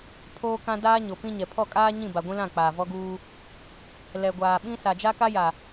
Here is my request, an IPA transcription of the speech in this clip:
pʰ oː˦ k ã˦ d aː˦ ɲ o˨ p ĩ˦ ɲ ɛ˨ pʰ ɔ˦˨ kʼ aː˦ ɲ ĩ˦˨ b a˨ ɡʷ ĩ˦ l ã˦˨ k͡p aː˨ v ɔ˦ ɡ uː˦ | l ɛ˨ ɡʷ aː˨ ɓ ĩ˦ s a˨ d͡ʒ a˦ k a˦ j a˨

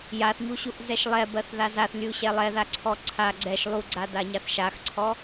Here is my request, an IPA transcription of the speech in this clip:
j a θ ɲ u ɕ u ʔ z ɛ ʃ lˠ ɛ b ɜ θ ð a z a θ lʲ u ɕ ɛ lˠ ɛ ð a ǀʰ ɔ ǀʰ a ɡ͡ǀ ɛ ʃ lˠ u ɡ͡ǀ a d a ɲ a θ ʃ a x ǀʰ ɔ

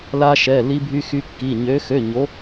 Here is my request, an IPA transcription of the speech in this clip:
l a˥ ʃ ɛ˧˥˧ l i˥ bʱ y˥ x y˥ kː i˧˥˧ ɲ ø˧˥ x ø˧˥˧ ɲ o˧˥

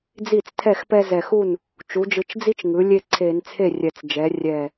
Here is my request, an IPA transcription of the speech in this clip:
d͡z i˥˩ t͡s tʰ ɛ˥˩ x p ɛ˦ z ɛ˨˩ x u˥˩ n | t͡ʃ u˩˧ d͡ʒ ɯ˨˩ t͡ʃ d͡z i˦ t͡ʃ ŋ ɯ˩˧ lʲ e˦ ǀʰ e˧˩˧ n t͡sʰ e˥˩ rʲ ɛ˨˩ t͡s d͡ʒ ɛ˩˧ rʲ ɛ˨˩

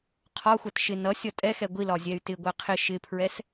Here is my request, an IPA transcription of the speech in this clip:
qʰ ɒ xʷ ʌ t ʃ ɪ n ʌ sʲ ʌ tʼ ɛ x ɛ ɡʷ i l ɒ zʲ ɛ y̯ t ɪ ɡʷ æ qʰ ɪ ʃ ɪ pʰ ɹ ɛ s

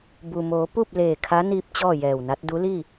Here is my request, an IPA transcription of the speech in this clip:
b u˩ m oː˩˧ p u˥˨ p̚ l eː˧˩ kʰ a˧˥ n iː˧ p̚ t͡ɕ ɔː˥˨ j ɛː˧˩ w n a˧˥ t̚ d u˧˥ l i˥˨

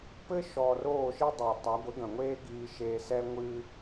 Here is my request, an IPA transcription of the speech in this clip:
p ɘ˦ ʃ ɔː˨ r oː˦˨ ʃ i˦ dˤ ɛ˨ tˤ a˨˦ ɡʷ ɘ˨˦ ɡ ɐ̃˨ ŋʷ eː˦ ɡ iː˧ ʃ eː˧ s ɛ˦ ŋʷ ɨ˧

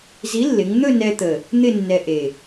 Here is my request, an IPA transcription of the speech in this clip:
z i˨˥ lː ɪ˩˧ ŋ n̪ ɵ˥˧ n ɛ˧ t̪ ə˨˩ | n̪ ɪ˥˧ nː ɛ˧ ʔ e˨˩

